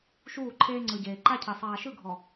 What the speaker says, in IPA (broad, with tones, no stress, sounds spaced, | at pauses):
ʃ uː˦˨ ǃʰ eː˦ ŋ͡ǀ ɯ˨ ɟ eː˨ ǃ a˦ cʰ e˨ sˤ aː˨ ʃ ɯ˦˨ ɡʱ ɔ˨